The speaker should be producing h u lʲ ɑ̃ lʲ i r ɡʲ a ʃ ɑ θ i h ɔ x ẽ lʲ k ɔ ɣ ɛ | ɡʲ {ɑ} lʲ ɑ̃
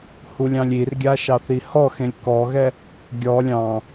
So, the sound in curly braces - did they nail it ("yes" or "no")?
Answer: no